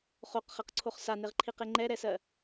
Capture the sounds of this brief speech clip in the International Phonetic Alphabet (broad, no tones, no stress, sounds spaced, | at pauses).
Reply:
χ o q χ ɛ q ǀʰ o χ s a n e ʁ ǃʰ i q e ŋ͡ǃ ɛ ɾ ɛ s ɜ